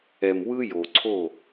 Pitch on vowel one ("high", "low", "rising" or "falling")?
low